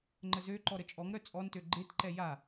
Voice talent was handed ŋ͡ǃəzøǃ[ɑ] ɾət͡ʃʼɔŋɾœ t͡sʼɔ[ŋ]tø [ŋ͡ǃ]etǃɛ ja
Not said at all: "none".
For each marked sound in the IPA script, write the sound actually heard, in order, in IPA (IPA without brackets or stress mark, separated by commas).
ɔ, n, ɡ͡ǃ